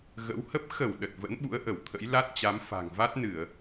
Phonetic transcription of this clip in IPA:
ɣ ə̰˧˥ w h ə˦˥ p̚ x ə˧˩ w ɗ ə˨˩ t̚ v ə̰˧˥ n ɓ ṵ˧˥ ə̯ ʔ ə˧˩ w t̪ʰ ə̰˧˥ j l a˦˥ t̚ t͡ɕ a˨˦ m f a̤˨˩ ŋ v a˦˥ t̚ n ɨ˧˩˨ ə̯

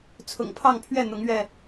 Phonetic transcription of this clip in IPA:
t͡sʰ ʊ̰˨˩ ŋ pʰ ɑ˥˨ ŋ pʰ ɥ ɛ˥˨ n̪ ʊ˨˦ ŋ ɥ ɛ˥˨

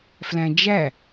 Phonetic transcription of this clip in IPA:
f l æ̃ d͡ʒ æ

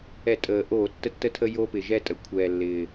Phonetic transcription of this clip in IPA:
ɛ˧˩˧ tʼ əː˨˩ ʔ oː˧˩˧ tː ə˥˩ tː ə˥˩ tʰ ə˦ j oː˦ p ɪ˨˩ ʒ ɛ˦ tʼ ə˩˧ kʷʰ ɛː˨˩ lː ɪː˨˩

